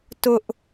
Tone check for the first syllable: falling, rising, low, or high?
high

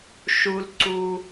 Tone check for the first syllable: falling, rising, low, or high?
low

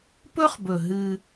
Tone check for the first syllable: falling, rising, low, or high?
high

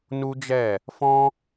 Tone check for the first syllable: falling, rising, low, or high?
high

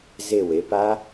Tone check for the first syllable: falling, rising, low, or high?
falling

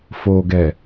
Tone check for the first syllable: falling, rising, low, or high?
low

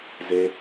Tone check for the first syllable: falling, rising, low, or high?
high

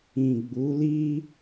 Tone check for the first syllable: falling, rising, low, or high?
low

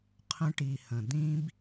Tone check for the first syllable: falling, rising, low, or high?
high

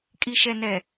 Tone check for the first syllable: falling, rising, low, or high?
low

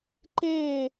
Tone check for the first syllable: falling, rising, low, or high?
falling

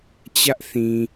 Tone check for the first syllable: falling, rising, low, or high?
high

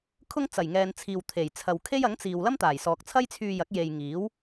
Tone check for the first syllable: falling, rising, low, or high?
high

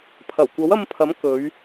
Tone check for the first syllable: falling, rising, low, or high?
low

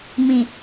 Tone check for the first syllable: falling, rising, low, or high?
low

